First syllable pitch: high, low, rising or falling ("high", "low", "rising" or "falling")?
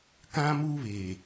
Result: high